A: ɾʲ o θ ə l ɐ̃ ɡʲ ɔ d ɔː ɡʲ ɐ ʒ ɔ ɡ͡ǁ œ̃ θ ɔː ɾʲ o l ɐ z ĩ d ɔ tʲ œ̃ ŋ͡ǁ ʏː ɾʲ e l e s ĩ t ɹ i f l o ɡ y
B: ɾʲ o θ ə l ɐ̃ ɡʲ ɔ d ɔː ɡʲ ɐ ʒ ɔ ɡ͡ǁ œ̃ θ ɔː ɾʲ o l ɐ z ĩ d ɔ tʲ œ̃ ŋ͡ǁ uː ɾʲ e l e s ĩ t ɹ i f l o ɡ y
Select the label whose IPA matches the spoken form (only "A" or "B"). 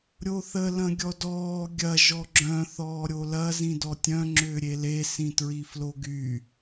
A